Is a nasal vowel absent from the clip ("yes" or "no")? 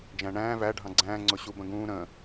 no